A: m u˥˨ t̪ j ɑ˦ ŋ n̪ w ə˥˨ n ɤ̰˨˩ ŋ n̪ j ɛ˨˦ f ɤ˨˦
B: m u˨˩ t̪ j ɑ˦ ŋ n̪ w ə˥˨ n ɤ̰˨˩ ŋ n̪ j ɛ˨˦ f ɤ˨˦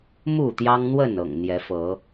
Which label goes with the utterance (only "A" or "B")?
A